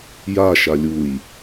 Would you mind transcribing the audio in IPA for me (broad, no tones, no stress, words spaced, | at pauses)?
ja ʃalʲuj